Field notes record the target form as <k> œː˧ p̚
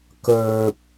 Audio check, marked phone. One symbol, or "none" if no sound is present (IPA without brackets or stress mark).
k